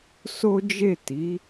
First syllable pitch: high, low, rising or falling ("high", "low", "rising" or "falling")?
high